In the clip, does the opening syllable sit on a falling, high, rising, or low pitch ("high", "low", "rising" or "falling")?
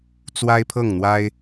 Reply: high